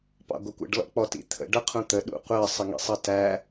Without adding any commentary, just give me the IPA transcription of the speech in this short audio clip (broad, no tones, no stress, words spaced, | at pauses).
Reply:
pɑ̰ɡʷʌkʷə̰ɖ lɔ̰k͡pɔt ḭt̪ʰə̰ ɖʌqʰũt̪ə ɗṵqʷɜ sˤəŋḭsˤʌtæ